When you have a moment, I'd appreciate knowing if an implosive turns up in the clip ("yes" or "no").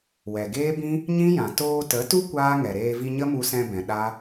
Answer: yes